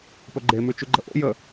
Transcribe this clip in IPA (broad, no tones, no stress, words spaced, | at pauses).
pɵɡ͡ǃe mʉt͡ʃʉɡ͡ǃəʔo̰ jə